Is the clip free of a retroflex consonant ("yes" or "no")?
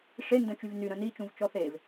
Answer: no